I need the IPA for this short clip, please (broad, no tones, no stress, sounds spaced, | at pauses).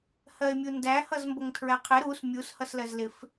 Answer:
h ɜ e̯ mʲ u n d æ h ʌ z m b ʌ ŋ tʰ ɹ æ qʰ ɪ ɾ u s mʲ u s h ʌ s l ɜ z l ɪ f